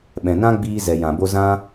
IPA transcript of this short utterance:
ɓ ɛ̃˨ n ã˦ ɡ͡b iː˧ z ɛ˨ j ã˨ b o˧ z ã˦

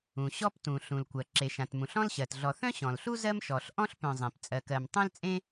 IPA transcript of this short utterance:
ũ˩ ɕ ɔ˦ p t ũ˩ ɬ ũ˩ l kʷ ɜ˩ ǁ e˩ ʃ ã˩ t m ũ˩ ɬ ɔ̃˦ l ɕ ɜ˩ t ɮ ɔ˨ θ œ̃˥ ɕ ɔ̃˩ l ɬ u˥ z ɜ˦ m ʃ ɔ˩ ɬ ʔ ɔ̃˥ ɬ p œ̃˨ zˤ ẽ˩ p t͡sʼ ɜ˨ k ɜ˨ m tˤ œ̃˥ l t͡sʼ ẽ˥

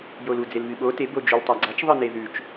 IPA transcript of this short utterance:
j o l u d͡z e l β ɨ ɓ o t e b o d͡ʒ ʉ l tˤ a ɡ͡ǀ a t͡ʃ ðˤ ɨ n e ð ʉ t͡ʃ

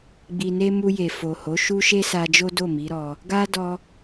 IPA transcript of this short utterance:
ɡ͡b i˨ n e˧ m u˧ j e˨ f o˨ h o˨˦ ʃ u˦ ʃ e˦ s a˧ d͡ʒ o˦ d o˦˨ m i˨˦ ɾ ɔ˧ | ɡ a˦ d ɔ˦

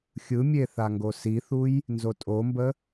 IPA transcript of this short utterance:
xʲ ɯ mʲ e θ a ŋ ɡ o s i θ u j | n z o tʼ o m b ə

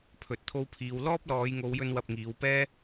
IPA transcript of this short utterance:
pʰ ɵ˨ t̚ t̪ʰ o˧ w pʰ iː˨˧ w l ɔː˥ p̚ l ɔː˨˧ j ŋ o˨˧ w j ɵ˧ n w ɐ˧ p̚ ŋ iː˨˧ w p ɛː˥

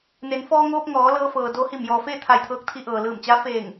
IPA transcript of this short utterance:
n e˩˧ n f ɔː˧ ŋ oː˧ p̚ ŋ ɔː˩˧ l ɤː˧ f ɤː˩ d o˧ h i˧˩ m j ɔː˩ f eː˥˨ t̪ʰ a˧˩ j t̪ʰ ɤː˧ k̚ t̪ʰ i˧ ʔ ɤː˩ l ɯː˧˩ m t͡ɕ a˧˥ f eː˧˩ ŋ

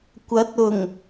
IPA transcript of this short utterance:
kʷ ɐ˨˥ t̚ ʊ˨˩ ŋ

